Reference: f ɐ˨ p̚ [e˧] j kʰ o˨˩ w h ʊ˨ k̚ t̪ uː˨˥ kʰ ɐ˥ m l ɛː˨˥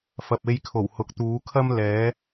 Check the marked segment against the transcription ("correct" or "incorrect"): correct